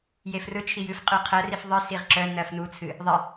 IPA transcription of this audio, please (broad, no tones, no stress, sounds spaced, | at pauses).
j e f r ɯ t͡ʃʰ i j ɨ f qʼ ɯ qʰ ɜ r i f ðˤ ɨ s i ʁ ǁ œ n ɜ f n u t͡sʰ ɨ | ðˤ i